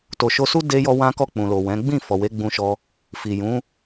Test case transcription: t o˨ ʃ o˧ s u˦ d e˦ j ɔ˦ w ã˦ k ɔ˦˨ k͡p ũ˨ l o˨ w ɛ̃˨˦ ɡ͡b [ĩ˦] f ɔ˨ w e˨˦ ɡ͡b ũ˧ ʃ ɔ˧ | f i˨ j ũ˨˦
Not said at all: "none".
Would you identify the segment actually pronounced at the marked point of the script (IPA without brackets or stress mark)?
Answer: ĩ˦˨